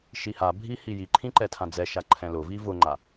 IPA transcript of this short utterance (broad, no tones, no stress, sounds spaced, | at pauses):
ʃ i h a bʱ i h i j i ǃʰ ĩ ǃ ɛ tʰ ã d͡z ɛ ʃ a ǃʰ ɛ̃ l ʊ v i v ʊ ŋ͡ǃ a